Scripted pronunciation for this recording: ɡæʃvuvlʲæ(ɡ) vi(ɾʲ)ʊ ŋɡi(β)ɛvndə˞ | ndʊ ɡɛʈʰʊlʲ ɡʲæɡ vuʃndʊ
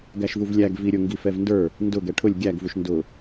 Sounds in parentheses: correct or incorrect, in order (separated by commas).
correct, correct, incorrect